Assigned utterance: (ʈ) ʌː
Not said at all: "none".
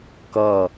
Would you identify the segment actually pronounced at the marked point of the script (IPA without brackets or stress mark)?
k